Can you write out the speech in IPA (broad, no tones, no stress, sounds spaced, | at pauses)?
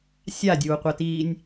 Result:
sʲ a dʲ uː qʷ ɐ t iː nʲ